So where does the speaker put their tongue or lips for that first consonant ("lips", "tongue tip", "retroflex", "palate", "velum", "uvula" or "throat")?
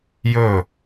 palate